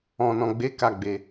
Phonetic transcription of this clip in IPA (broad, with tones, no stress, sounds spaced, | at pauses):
ɔ̃˨ n ɔ̃˨ ɡ͡b e˨˦ k a˦˨ ɡ͡b e˧